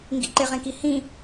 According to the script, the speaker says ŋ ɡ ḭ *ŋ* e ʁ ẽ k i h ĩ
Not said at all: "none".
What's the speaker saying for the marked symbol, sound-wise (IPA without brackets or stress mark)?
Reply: ǃ